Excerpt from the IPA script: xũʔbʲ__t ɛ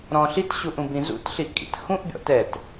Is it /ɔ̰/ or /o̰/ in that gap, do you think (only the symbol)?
ɔ̰